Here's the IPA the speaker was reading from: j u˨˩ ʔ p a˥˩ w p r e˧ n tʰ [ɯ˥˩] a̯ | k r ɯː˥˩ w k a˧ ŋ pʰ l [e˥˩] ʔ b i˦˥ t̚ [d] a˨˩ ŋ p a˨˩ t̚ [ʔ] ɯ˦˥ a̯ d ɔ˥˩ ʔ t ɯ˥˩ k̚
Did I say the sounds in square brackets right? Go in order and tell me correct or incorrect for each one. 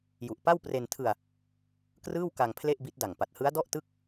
incorrect: ɯ˧, correct, correct, incorrect: h

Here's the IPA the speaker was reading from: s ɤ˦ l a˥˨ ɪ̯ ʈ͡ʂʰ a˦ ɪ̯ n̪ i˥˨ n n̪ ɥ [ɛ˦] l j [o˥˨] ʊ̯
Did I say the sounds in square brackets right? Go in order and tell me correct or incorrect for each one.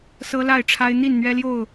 correct, correct

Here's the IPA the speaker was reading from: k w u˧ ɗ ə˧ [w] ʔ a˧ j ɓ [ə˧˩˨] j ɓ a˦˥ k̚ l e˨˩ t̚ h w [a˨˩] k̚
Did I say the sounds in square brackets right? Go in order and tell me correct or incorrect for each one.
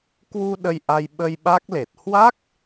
incorrect: j, incorrect: ə˧, incorrect: a˦˥

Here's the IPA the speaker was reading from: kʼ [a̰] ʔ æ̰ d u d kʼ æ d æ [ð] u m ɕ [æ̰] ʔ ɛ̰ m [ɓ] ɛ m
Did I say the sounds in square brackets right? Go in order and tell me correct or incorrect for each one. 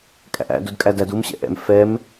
incorrect: æ̰, incorrect: d, incorrect: ɛ̰, incorrect: f

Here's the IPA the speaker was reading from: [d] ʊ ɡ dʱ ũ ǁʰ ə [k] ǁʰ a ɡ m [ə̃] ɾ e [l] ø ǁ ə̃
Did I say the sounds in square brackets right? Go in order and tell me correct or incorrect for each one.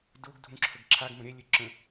correct, incorrect: ɡ, correct, incorrect: lʲ

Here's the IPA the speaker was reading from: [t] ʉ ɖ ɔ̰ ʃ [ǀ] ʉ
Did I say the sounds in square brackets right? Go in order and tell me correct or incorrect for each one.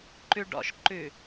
incorrect: ǃ, incorrect: ǃ

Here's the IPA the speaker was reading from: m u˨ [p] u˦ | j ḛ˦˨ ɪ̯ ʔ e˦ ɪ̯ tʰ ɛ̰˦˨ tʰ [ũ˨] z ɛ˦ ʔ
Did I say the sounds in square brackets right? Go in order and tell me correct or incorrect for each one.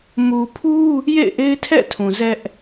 incorrect: pʰ, correct

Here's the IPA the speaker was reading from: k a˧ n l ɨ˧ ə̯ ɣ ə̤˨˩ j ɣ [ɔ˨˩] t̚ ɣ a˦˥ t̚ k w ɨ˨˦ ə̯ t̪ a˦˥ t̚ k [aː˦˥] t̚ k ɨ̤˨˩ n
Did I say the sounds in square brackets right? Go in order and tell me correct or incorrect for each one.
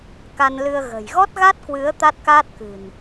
incorrect: ɔ˦˥, correct

